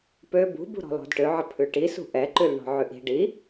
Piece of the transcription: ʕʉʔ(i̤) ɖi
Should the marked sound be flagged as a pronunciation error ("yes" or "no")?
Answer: no